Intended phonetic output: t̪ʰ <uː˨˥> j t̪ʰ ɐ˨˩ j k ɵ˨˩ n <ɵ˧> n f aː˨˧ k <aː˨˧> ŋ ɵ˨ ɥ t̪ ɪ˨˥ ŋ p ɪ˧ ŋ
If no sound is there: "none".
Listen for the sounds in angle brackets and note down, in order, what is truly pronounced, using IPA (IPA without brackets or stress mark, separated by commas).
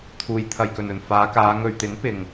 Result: uː˨, ɵ˨˩, aː˨˧